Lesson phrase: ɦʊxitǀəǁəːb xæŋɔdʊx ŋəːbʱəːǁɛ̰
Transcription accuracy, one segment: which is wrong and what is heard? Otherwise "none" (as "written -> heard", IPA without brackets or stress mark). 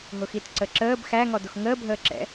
none